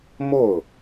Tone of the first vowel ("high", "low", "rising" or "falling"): falling